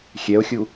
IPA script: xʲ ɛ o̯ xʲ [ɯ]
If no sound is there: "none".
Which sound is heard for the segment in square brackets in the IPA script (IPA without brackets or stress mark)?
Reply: u